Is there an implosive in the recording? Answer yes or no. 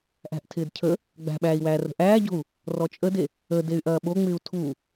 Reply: yes